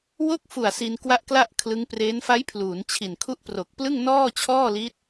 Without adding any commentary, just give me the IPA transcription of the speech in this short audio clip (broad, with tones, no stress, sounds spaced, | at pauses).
w o˥˩ k̚ f u˨˩ a̯ s i˧ n k w a˥˩ ʔ k l a˥˩ ʔ kʰ l ɯ˦˥ ŋ p r eː˦˥ n f a˦˥ j pʰ l uː˩˦ n t͡ɕʰ i˨˩ n kʰ u˥˩ ʔ p r o˨˩ k̚ p l ɯ˥˩ ŋ n ɔː˥˩ t͡ɕʰ ɔː˥˩ l i˦˥ t̚